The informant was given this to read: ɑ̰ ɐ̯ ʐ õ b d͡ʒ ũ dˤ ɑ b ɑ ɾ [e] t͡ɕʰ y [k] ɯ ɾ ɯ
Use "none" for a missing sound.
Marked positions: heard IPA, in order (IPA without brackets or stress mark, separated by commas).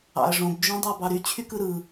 y, k